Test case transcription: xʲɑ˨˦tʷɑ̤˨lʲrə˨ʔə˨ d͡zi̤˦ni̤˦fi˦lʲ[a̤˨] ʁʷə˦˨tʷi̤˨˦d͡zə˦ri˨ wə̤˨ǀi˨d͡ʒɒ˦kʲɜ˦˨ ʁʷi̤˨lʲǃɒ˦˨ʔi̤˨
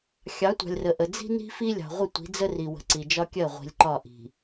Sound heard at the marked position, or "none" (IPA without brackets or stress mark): ɑ̤˨